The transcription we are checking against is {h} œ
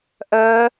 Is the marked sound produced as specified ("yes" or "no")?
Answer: no